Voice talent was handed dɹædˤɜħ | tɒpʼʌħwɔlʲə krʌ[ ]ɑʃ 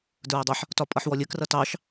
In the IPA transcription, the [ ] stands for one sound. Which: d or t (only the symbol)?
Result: t